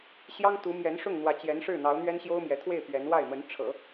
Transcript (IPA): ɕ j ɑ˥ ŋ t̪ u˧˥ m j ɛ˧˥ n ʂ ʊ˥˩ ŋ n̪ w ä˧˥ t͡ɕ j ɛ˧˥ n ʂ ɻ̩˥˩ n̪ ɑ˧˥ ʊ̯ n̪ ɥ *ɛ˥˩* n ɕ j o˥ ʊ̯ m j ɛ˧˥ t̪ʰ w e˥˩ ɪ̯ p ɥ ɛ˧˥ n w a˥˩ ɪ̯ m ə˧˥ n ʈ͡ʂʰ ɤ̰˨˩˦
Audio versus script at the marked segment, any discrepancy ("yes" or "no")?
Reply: yes